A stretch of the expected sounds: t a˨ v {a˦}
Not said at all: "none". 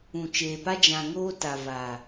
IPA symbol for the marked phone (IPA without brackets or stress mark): a˨